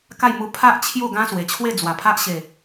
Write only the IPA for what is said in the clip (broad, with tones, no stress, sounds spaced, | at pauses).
k a˥˧ j m u˧ pʰ a˦ ʔ t͡ɕʰ j u˥˧ ɡ ã˦ s w e˨˩ t͡ɕʰ w e˥˧ d͡z w a˨˩ pʰ a˦ ʔ ɕ e˨˩